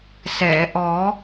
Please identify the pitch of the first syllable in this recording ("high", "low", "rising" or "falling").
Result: low